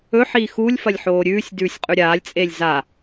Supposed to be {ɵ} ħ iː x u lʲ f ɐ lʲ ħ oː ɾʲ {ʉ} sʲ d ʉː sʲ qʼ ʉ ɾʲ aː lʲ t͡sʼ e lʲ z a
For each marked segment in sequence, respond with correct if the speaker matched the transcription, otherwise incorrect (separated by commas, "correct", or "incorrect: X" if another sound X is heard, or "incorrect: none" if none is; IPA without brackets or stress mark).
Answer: correct, incorrect: ʉː